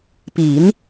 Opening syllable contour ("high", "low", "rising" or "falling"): low